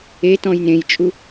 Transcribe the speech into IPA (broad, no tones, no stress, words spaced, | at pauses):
e tɔ̃jnẽjt͡ʃʼu